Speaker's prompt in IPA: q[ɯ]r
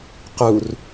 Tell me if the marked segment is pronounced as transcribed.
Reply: no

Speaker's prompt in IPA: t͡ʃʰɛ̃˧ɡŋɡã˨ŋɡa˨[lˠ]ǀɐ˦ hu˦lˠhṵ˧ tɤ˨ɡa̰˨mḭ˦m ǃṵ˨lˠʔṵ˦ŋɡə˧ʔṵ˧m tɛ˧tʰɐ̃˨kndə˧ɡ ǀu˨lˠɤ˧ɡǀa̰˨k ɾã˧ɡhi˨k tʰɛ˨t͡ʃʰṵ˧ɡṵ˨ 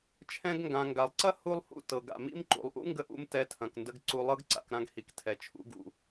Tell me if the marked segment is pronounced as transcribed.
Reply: yes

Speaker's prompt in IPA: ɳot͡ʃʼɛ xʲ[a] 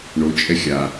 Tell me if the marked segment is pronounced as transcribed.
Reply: yes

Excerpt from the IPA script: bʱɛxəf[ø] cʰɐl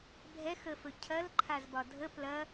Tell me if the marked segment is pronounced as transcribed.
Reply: no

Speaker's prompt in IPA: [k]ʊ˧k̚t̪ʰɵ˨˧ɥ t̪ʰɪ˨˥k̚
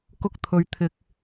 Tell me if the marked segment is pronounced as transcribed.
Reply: yes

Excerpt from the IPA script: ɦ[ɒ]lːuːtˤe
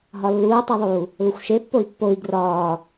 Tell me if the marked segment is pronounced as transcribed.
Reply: yes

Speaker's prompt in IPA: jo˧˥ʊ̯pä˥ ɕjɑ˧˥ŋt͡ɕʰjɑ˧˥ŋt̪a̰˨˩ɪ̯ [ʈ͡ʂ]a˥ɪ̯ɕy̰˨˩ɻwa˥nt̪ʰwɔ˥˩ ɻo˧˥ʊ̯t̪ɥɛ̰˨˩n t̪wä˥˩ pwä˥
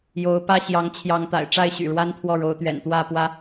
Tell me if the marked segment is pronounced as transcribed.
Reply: yes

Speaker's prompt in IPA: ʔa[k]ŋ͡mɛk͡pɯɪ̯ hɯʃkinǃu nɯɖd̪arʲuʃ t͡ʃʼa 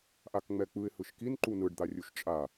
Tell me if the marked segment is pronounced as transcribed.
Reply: yes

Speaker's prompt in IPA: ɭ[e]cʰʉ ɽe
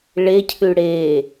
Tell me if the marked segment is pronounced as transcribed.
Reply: yes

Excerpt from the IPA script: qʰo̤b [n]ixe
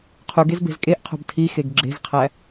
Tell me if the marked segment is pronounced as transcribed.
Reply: no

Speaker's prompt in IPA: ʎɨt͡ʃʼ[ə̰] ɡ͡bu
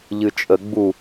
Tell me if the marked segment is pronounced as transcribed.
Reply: no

